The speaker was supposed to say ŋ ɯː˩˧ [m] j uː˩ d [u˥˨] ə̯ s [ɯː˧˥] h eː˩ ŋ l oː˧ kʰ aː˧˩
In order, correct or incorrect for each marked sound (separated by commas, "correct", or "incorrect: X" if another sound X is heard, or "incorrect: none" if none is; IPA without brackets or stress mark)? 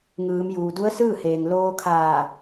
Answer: correct, incorrect: u˧˥, incorrect: ɯː˥˨